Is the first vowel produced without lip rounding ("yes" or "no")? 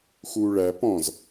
no